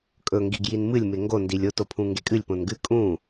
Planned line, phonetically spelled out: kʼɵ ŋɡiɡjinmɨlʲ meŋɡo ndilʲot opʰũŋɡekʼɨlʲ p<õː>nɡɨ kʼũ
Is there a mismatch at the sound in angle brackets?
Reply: yes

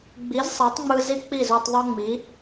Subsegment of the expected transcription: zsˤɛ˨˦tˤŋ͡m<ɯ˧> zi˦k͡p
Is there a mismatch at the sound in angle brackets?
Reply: no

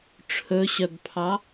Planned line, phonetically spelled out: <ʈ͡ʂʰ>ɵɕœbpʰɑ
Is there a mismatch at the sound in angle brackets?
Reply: no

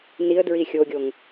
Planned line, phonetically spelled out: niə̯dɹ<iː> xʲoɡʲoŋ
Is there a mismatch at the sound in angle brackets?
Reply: yes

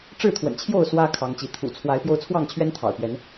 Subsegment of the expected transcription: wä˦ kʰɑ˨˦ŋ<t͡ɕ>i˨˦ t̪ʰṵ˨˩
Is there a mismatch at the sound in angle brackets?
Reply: no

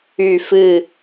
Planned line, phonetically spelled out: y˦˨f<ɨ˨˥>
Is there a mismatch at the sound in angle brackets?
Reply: yes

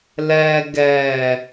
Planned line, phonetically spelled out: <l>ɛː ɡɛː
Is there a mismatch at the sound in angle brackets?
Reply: no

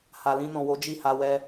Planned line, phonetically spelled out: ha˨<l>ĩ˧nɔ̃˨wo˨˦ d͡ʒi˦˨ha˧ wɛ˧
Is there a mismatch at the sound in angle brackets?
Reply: no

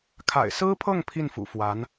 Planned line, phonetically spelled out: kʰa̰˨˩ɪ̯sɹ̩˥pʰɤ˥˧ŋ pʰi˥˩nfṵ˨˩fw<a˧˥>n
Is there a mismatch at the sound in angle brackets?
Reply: no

